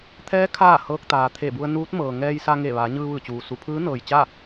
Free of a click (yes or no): yes